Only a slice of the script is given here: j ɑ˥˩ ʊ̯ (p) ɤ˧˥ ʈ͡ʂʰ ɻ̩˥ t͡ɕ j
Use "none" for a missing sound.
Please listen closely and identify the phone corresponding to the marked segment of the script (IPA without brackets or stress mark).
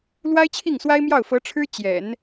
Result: f